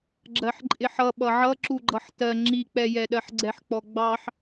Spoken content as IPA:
ɡ͡ǁ ɜ ħ ǃʼ ɪ ħ ʌ ɓ ʌ ʕ ʌ ǁ u ɡ͡ǃ ʌ ħ t ɜ ŋ͡ǁ i k͡p ɛ j ɛ ɗ ɜ ħ ɡ͡ǀ ɛ ħ k͡p ɔ ɡ͡b ɑ ħ

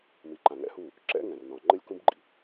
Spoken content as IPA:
m i˨ ǃ ã˨ ŋ ɛ̰˦ h u˦˨ | ǁ ɛ̰˦ ŋ ɛ̃˨ r n ɔ̃˨ ŋ͡ǃ ɘ˦ lʲ k ũ˦ b ɡ͡ǃ ḭ˨

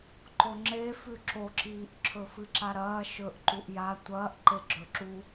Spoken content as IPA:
ǃ o ŋ͡ǁ e f ʉ ǁ o ǁ iː ʔ ǁʰ ɵ f ɨ ǁ a ɾ ɐː ʃ ɵ ʔ ǃ u ʔ j a tʷ ɐː ʔ ǃ e ɡ͡ǁ ɵ ǁ u

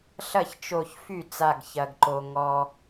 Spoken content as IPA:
ɬ ɐ˥˩ ç t͡ʃ o˧˩ ç f y˥˩ t͡s a˧˩ ɡ ç ɐ˩ ɡ ǃ o˩ ŋ ɔ˩

